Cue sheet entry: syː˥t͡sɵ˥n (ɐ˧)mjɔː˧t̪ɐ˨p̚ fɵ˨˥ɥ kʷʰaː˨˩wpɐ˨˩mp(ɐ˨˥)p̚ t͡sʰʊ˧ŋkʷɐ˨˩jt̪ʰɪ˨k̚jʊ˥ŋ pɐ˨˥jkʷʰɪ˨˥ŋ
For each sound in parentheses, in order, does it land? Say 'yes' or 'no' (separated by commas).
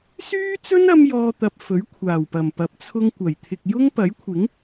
no, yes